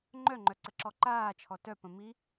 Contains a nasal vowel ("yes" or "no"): yes